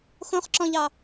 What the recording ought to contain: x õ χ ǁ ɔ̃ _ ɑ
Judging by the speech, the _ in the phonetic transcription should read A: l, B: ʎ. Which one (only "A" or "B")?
B